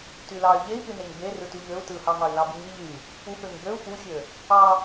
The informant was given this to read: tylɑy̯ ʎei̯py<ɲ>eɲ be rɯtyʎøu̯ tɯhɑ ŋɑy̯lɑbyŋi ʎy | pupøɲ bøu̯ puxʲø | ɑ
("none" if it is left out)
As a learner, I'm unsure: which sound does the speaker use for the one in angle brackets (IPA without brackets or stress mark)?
n